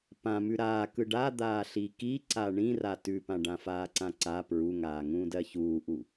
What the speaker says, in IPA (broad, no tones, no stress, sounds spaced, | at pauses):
p ã m ʉ ɾ aː k ɯ ɖ a d̪ aː ɬ i k i ǀ a ɳ ĩ r a t ʉ p ã ɖ ã f aː ǀ ã ǀ a p ɹ u ŋ aː ŋ ũː d ɜ ç uː ʔ u